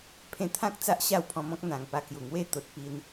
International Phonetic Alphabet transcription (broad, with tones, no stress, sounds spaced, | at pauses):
pʰ ẽ˧ t̪ʰ ã˦ k̚ t͡s a˦ ʔ ɕ a˥˧ w pʰ ɔ̃˧ m ɔ̃˦ k̚ n̪ ã˨˩ ŋ p a˧ k j u˨˩ ŋ w e˦ t̪ o˨ t̚ p i˧ n